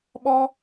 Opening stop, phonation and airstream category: implosive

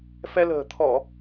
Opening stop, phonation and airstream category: aspirated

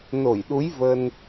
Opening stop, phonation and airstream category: implosive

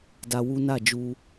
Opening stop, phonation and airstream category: plain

